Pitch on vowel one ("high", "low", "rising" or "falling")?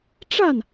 falling